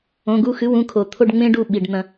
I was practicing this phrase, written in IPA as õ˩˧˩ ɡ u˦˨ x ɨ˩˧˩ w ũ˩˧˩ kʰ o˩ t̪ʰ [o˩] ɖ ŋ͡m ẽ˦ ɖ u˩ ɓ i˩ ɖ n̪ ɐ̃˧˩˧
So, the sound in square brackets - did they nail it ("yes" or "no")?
no